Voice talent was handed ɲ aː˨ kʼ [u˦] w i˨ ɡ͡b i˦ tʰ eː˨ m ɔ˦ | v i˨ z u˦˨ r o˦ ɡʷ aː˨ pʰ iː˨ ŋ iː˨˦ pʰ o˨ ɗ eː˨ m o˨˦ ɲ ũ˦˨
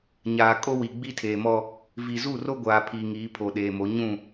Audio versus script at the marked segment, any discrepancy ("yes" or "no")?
yes